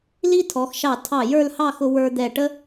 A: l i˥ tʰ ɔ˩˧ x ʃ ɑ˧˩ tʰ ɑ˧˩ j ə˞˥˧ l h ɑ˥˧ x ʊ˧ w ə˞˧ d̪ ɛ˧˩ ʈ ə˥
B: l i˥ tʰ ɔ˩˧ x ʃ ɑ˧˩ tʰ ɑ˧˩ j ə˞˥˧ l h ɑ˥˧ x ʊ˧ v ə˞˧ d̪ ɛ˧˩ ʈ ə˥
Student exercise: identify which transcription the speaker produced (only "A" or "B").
A